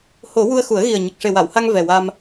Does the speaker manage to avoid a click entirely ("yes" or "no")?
yes